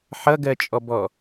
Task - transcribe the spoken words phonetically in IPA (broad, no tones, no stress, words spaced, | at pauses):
ħʌɡɜt͡ʃʼɔbɔ